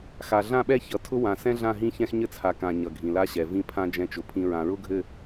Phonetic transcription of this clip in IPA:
x a˨ ɮ ã˦˨ ɓ ɛ˦ ç ʌ˨ tʰ ʊ˦ w ã˨ s ɛ̃˦ ɮ ã˦˨ ɦ ĩ˦ ç ɛ̃˦ x ɲ ɘ˦ t͡sʰ a˨ k ã˨ ɲ ʌ˨ ɡʱ ĩ˨ l a˦ ɕ ɛ˨ v ĩ˦ pʰ ã˦ d͡ʒ ɛ̃˦ t͡ʃ ʊ˨ pʰ ĩ˦ ɹ ã˨ ɹ ʊ˦ ɡʱ ɘ˦˨

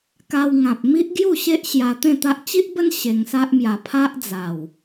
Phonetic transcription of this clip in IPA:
k a˧ w ŋ ã˨ p̚ m i˦ ʔ ɡ j u˥˧ ɕ e˦ ʔ ɕ j a˧ t̪ ẽ˥˧ t̪ a˦ ʔ t͡ɕ i˦ ʔ b ə˦ n ɕ e˧ ŋ s a˦ ʔ m j a˧ pʰ a˦ ʔ d͡z a˨˩ w

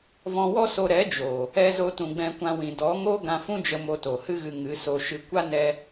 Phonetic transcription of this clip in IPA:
v ɔ̃˧ w ɔ˦ s o˧ ɾ ɛ˨˦ d͡ʒ o˨ | ɛ˧ z o˧ t ũ˨ ɡ͡b ɛ̃˧ kʷ ã˧ w ĩ˨ d ɔ˨˦ ŋ o˦ ɡ ã˧ f ũ˦ d͡ʒ ə˧ m o˧ t o˨ h ɨ˦ ɣ ɨ˧ ŋ ɨ˨˦ s o˧ ʃ ɨ˧ kʷ a˦ n ɛ˦

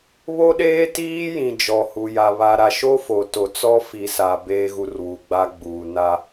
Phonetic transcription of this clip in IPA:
β o˦ ɗ eː˦ t iː˦ j ĩ˨ d͡ʒ ɔ˨ h u˨ j a˨ β a˨ ɾ a˨ ʃ o˦ f o˨ t o˨ t͡s ɔ˦ f i˨ s a˨ b eː˨ ɣ u˨ r w u˨ ɡ͡b a˦ ɡ͡b uː˨ n a˦

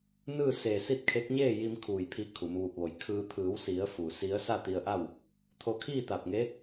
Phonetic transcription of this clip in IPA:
n ɯː˥˨ s eː˧˩ s i˥˨ t̚ kʰ e˧˥ k̚ ɲ eː˥˨ j i˧ m kʰ uː˧˩ j pʰ i˧ kʰ u˩˧ m ʋ u˧˩ p̚ ʋ o˧˩ j kʰ ɯː˧ t̪ʰ ɯː˩˧ w s i˩˧ ə̯ f u˩ s i˧˥ ə̯ s a˥˨ t̪ i˧ ə̯ ʔ a˥˨ w | t̪ʰ o˧ kʰ iː˥˨ t̪ a˧˩ p̚ ŋ e˧˥

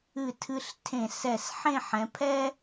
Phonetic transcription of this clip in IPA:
ɨ˧˩ tʰ ɨ˧ ɬ tʰ ẽ˧˩ s ɛ˧˩ s ħ ẽ˥˧ ħ ɛ̃˩˧ pʰ ɛ˥

